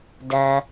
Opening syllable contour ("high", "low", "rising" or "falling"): low